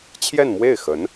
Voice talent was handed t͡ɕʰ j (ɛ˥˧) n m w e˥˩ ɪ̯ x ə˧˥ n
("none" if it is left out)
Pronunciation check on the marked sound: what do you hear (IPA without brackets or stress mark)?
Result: ɛ˥˧